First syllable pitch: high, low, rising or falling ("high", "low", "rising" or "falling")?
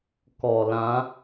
low